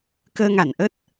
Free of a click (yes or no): yes